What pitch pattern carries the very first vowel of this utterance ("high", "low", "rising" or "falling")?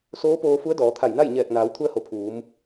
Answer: rising